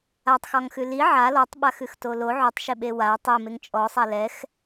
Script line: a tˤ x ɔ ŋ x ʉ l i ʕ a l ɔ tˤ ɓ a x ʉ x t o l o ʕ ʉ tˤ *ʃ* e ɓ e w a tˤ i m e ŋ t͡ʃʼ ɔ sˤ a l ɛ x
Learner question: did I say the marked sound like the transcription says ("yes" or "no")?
yes